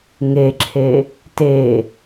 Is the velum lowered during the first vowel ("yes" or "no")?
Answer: no